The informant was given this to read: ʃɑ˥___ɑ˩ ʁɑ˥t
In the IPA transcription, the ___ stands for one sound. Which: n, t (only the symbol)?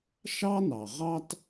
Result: n